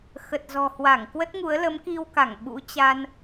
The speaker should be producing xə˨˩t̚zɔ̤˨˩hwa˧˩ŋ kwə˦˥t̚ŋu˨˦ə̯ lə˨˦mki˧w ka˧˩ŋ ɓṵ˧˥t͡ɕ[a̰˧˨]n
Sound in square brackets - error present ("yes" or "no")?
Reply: yes